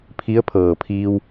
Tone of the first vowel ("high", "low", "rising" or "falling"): rising